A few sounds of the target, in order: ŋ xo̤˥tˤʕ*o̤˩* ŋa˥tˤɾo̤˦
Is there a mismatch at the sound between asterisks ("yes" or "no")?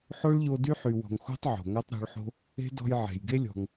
no